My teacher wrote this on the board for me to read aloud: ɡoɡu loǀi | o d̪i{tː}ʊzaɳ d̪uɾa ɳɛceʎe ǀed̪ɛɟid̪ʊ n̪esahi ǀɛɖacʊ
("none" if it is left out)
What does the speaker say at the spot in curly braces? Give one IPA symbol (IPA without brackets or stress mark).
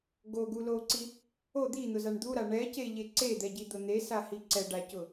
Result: n̪